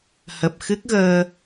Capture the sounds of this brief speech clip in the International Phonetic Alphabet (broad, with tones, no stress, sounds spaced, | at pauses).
h ə˨˩ p̚ x ɨ˦˥ k̚ ɣ əː˧